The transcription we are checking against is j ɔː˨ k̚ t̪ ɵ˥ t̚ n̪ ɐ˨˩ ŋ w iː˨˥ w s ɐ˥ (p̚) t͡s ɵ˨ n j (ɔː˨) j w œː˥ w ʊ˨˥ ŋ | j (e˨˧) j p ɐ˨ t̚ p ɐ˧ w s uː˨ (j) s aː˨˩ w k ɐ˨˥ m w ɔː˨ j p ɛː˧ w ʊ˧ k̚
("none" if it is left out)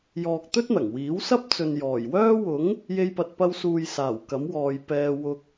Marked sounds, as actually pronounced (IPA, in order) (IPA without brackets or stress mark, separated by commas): p̚, ɔː˨˩, e˧, j